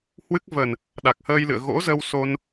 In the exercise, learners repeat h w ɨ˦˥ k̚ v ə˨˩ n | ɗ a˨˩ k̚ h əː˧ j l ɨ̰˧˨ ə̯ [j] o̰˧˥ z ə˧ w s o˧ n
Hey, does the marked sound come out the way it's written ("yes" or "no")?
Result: no